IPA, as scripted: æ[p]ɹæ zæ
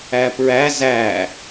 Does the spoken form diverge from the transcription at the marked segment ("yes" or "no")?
no